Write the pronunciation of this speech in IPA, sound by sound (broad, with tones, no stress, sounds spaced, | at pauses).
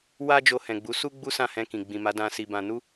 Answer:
w a˦ d͡ʒ o˧ h ɛ̃˨ ɡ͡b u˨˦ s u˦ ɡ͡b u˦ s ã˦˨ h ɛ̃˧ k ĩ˨ ɡ͡b ĩ˨ m a˨˦ d ã˧ s i˧ b ã˧ n u˦